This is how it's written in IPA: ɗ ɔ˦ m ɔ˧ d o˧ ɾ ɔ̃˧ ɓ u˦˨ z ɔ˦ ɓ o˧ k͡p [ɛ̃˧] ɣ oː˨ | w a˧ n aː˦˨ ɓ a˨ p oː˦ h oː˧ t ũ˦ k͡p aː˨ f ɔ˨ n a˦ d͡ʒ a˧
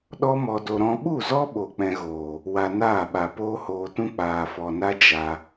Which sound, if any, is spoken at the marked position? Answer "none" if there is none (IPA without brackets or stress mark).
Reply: ɛ̃˧